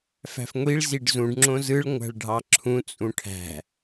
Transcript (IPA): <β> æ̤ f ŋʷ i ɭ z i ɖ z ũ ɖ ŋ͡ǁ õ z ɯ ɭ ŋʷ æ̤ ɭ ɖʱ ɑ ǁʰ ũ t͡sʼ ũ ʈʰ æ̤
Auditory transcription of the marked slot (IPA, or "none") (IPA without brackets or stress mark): f